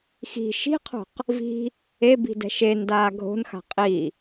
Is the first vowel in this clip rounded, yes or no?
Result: no